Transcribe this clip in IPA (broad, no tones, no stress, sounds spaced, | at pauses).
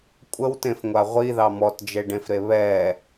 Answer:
kʷʼ ə w t ẽ f ŋʷ a ʁʷ i ð ɑ m ɔ t d͡ʒ e ɖ ẽ f ɾ e β ɛ